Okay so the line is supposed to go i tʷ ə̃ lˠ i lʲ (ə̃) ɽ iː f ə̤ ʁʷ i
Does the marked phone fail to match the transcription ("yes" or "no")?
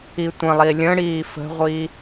no